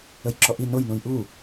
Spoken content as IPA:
ə j ǁ ɔ ʔ i n o j n ũ j ʔ u

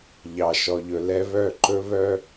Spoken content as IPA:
ʎ ɑ˧ ʃ ɔ˧ ʎ ɵ˧ l ɛ˦ β œ˦˨ ǃ ɵ˦ β œ˦

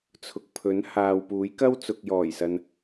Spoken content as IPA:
t͡sʰ ʊ˨ k̚ pʰ ɵ˨˥ n h aː˨ w p uː˨˥ j k ɐ˥ w t͡s ʊ˨ k̚ j ɔː˨˩ j s ɐ˨ n

